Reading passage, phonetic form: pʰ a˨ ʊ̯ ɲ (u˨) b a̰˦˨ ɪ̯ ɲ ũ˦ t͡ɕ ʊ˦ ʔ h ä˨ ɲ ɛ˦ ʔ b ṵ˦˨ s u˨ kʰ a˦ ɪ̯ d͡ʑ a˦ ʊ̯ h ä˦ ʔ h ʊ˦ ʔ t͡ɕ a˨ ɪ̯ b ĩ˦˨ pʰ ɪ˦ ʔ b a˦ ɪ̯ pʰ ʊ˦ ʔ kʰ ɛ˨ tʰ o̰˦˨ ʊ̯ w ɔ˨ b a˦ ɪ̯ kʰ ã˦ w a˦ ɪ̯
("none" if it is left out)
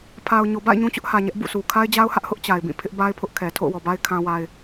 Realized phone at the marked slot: o˨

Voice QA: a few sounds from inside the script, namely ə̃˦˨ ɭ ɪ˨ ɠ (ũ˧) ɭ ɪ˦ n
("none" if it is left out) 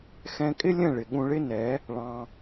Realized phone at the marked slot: ũ˧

